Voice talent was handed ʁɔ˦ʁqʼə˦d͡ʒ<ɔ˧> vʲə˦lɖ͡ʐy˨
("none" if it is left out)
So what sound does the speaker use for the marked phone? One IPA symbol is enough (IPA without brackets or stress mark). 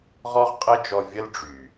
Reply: ɔ˧